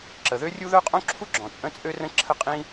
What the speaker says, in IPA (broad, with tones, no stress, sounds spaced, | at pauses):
ǁ ə˩ ð ø˥ rʲ u˥ ð œ˥ qʼ õ˥ ǁʰ u˥ ɡ͡ǁ ɔ̃˩ t͡sʼ ə̃˥ t͡sʼ ø˥ r ə̃˥ ǁʰ ə˥ qʼ ĩ˥